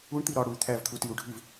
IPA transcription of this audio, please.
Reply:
u ɳ t̪ i ɾ ɒ ɽ u y̯ t̪ʰ æ v t̪ʰ u t i u̯ ɖʱ i v

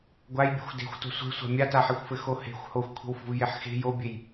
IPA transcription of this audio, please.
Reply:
ɡʷ a j bʲ a̤ xʷ d e̤ xʷ t o̤ sʷ e̤ sʷ a̤ mʲ a t a ħ e xʷ f ɘ x o h e̤ xʷ h o xʷ kʷʰ e̤ w f o̤ v j e ħ x e̤ j o bʲ e j

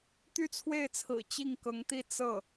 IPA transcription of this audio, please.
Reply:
t̪ y˥˧ t͡sʰ w e˥˩ ɪ̯ t͡sʰ ɹ̩˨˩ t͡ɕ i˥˩ ŋ k ɤ˧˥ ŋ t̪ i˥˧ t͡s ɤ˥˩

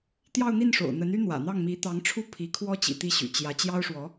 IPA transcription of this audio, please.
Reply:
t̪ j ɑ˥˧ ʊ̯ n̪ i˥˩ n ʂ o̰˨˩ ʊ̯ n̪ ə˧˥ n y˥ n̪ w ä̰˨˩ n̪ ɑ˥˩ ŋ m i˧˥ t̪ ɑ˧˥ ŋ ʈ͡ʂʰ u˥˩ pʰ i˧˥ kʰ w ɔ˥ t͡ɕ ḭ˨˩ t̪ i˥˩ ɕ y̰˨˩ t͡ɕ j ä˧˥ t͡ɕ j ɑ˥ ʊ̯ ʂ w ɔ˧˥

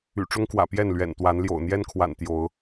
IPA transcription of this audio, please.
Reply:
y̰˨˩ ʈ͡ʂ ʊ˦ ŋ k w ä̰˨˩ p j ɛ˥˨ n l ɥ ɛ̰˨˩ n t̪ w a˨˦ n l j o̰˨˩ ʊ̯ n̪ j ɛ˦ n kʰ w a̰˨˩ n t̪ j o˨˦ ʊ̯

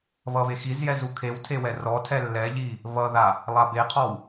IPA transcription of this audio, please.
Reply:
β ʌ β e x i z j ɛ z u kʰ e w tʰ e w ɛ r ɔ tʰ ɛ lː ɛ ʎ i | β ʌ ð a | lˠ a b e qʰ ɔ w

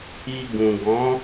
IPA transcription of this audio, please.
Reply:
i˧ ɡ ũ˨ ɡ ɔ̃˨˦

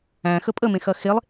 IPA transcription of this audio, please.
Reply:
æ̃ x ə pʼ ə m ẽ x ɐ x e lˠ

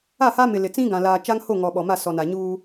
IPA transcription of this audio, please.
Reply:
a˦˨ h a˦ m ɪ˨ l ɪ˨ t͡s ĩ˦ ɡ ã˨ l aː˨ t͡ʃ a˦ ŋ h o˦˨ ŋ ɔ˨ ɓ ɔ˨ m a˦˨ s ɔ˨ n a˨ ɲ uː˦

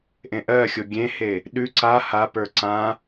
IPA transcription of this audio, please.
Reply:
ʔ ẽ ʔ ɜ xʲ o ɡʲ ẽ h e | ɗ ʉ ǀ a h a p ə˞ ǀ ã

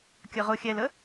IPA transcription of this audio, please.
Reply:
kʲ ə ʁ ʊ xʲ ɛ l ə

